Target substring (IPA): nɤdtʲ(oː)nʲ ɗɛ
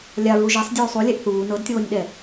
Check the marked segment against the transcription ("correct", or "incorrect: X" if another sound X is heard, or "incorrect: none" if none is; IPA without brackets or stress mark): correct